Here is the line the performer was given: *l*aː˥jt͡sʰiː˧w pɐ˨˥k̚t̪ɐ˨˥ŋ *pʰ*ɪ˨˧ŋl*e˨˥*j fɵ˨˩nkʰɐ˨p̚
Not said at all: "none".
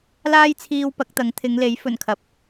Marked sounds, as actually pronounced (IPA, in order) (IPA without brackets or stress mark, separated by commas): l, t̪ʰ, e˨˥